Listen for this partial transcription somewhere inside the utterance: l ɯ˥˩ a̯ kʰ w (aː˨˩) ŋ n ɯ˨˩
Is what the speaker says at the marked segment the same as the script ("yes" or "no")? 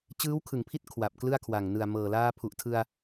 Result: no